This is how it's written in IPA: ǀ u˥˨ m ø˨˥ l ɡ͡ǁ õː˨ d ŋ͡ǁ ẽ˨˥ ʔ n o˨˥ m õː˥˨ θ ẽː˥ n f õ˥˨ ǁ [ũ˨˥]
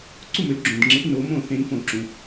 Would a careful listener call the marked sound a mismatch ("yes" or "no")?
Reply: no